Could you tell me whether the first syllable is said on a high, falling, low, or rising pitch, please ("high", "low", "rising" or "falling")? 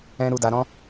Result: high